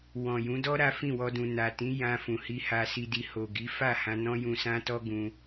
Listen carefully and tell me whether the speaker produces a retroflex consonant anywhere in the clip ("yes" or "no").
no